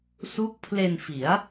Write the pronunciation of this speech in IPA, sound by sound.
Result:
su˦˥k̚pʰle˧nfi˩˦a̯

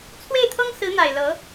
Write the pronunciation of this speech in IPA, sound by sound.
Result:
t͡sʰwe˥˩ɪ̯t̪ʰɤ˥ŋ sɹ̩˧˥n̪a˨˩ɪ̯ lɤ˧˥

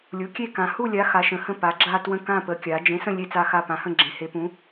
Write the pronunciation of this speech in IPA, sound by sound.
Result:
lʲu˨˥kʲe˥˧ kã˨˥ hu˥˧lʲa˨˥ xa˨˥ʃə̃˨˥hə̃˥˧ pa˨˥ɡ͡ǁa˥˧twə̃˥˧ kã˥˧pə˨˥ kʲa˨˥ d͡ʒẽ˨˥sə̃˥˧ lʲe˥˧t͡sa˥˧xa˥˧ pã˨˥hə̃˥˧ɡ͡ǁẽ˨˥ he˨˥pũ˨˥

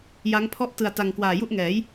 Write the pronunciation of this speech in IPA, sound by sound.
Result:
ja˦˥ŋpʰɔ˥˩ʔ tɯ˧a̯ta˧ŋ kwaː˨˩ju˥˩ʔŋɛː˩˦j

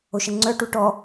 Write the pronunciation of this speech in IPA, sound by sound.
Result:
oʃəŋ͡ǀœ ʈuʈɔ

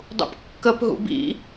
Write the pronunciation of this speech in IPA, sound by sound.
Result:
dˤṵpkːəp ɦṵbḭ

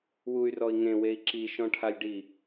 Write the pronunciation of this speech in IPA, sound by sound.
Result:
wuy̯rɔi̯ ŋẽwei̯ ǁiʃɔ̃ʈʰalʲɖi

